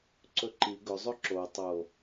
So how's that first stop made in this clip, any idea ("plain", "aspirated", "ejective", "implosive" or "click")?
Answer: click